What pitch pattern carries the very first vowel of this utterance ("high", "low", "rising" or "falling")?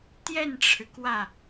falling